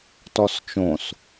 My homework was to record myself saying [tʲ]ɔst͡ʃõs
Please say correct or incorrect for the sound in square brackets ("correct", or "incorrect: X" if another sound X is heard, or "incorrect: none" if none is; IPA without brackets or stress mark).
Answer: incorrect: t